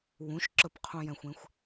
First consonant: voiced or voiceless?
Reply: voiced